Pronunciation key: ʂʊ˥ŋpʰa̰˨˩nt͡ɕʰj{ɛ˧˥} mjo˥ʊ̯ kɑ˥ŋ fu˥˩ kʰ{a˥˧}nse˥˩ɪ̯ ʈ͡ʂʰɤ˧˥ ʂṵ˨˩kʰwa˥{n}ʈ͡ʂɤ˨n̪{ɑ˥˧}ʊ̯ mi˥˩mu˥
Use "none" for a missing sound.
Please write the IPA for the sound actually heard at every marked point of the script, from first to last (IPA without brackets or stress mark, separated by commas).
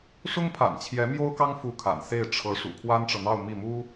ɛ˧˥, a̰˨˩, n, ɑ˥˧